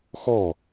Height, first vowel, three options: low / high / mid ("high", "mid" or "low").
mid